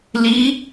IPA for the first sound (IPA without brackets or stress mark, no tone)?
l